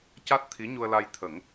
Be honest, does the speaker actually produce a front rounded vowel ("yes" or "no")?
no